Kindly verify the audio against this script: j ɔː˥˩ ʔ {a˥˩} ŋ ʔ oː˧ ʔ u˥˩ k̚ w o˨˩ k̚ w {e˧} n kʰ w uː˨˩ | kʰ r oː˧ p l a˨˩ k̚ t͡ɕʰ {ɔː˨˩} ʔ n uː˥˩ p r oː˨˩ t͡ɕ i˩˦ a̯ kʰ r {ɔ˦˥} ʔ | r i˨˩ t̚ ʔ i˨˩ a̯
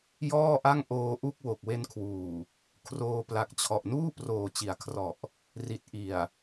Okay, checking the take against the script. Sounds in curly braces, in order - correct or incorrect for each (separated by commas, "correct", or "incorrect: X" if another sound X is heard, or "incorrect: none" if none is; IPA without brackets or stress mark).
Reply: correct, correct, incorrect: ɔ˨˩, incorrect: ɔ˨˩